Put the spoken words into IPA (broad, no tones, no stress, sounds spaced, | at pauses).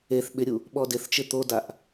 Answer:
e θ ɓ ɪ ɾʲ u | ɓ ɔ d ɪ θ t͡ʃ ɪ t̪ o d a ʔ